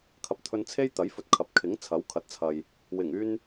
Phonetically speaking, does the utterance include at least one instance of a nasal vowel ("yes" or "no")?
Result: no